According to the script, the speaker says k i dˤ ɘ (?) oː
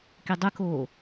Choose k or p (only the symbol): k